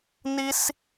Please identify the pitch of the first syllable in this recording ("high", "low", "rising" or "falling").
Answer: high